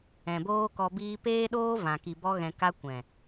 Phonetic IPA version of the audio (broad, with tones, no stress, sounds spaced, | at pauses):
ɛ̃˨ b oː˦ k ɔ˧ b iː˦ p eː˦ ɗ oː˦ v ã˨ k i˨ b ɔ˧ ɣ ɛ̃˨ k a˧ kʷ ɛ̃˨